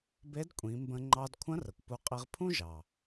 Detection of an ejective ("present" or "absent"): present